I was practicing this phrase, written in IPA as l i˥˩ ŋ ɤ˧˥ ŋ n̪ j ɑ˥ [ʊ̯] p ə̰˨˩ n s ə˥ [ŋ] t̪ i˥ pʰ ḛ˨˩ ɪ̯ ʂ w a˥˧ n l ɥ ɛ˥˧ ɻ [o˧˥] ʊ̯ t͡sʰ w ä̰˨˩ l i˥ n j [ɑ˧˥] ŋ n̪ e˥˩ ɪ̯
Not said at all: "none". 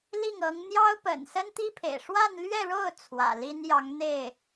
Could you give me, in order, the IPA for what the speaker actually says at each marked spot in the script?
ʊ̯, n, o˥˩, ɑ˧˥

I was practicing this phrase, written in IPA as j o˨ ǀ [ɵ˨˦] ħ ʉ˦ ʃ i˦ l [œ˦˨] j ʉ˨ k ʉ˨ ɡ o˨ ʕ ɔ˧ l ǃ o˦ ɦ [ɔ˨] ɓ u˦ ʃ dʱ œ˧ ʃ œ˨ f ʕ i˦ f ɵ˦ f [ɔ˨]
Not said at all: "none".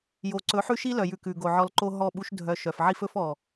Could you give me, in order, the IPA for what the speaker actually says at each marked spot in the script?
ɵ˨˦, œ˨, ɔ˦˨, ɔ˨

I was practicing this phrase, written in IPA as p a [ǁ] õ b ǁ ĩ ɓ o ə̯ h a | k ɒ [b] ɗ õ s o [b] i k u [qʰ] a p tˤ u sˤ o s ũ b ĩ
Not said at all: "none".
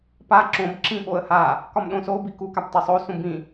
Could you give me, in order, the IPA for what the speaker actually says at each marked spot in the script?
ǁ, m, b, k

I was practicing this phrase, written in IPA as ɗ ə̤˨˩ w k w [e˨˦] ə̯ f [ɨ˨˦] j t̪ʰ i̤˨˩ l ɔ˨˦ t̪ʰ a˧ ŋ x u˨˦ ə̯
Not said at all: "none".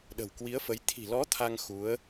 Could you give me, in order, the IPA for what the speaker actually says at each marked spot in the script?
i˨˦, ə˨˦

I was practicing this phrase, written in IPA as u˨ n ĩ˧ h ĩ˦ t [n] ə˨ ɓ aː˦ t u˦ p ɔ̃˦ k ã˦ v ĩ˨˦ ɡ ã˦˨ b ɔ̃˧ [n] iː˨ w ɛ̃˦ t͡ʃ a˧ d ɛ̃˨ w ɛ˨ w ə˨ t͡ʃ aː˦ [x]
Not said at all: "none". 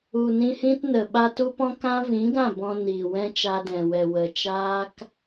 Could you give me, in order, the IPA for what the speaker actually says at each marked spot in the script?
n, n, k

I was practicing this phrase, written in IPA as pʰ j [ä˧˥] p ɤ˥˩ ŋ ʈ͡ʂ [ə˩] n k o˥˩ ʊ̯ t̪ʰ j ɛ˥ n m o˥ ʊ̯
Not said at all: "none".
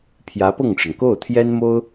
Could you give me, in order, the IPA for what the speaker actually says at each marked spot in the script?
ä˧˥, ə˩

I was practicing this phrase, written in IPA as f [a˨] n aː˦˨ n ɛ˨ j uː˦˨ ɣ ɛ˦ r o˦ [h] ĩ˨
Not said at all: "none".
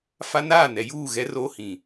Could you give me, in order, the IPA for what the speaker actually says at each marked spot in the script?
a˦, h

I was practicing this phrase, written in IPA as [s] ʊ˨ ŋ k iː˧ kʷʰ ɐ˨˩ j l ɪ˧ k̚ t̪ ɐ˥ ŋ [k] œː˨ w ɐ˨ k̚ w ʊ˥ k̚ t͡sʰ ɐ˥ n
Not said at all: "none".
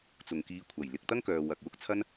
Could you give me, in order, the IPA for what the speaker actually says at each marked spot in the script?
t͡s, k

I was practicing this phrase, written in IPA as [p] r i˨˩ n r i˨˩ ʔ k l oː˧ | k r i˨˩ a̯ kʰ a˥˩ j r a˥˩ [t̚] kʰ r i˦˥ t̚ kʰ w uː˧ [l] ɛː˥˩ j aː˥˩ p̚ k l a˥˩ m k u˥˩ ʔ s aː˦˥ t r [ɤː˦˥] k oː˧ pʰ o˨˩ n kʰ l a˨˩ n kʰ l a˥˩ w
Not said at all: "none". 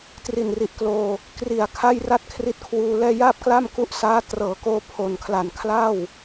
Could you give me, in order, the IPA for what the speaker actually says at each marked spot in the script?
t, t̚, l, ɤː˩˦

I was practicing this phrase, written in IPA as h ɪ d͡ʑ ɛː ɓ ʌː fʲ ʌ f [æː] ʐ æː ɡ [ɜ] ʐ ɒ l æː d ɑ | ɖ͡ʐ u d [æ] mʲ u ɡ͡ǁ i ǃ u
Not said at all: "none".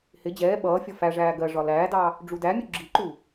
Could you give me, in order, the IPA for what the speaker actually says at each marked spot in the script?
æ, ɜ, æ

